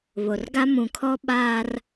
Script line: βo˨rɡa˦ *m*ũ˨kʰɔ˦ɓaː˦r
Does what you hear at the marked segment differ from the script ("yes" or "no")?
no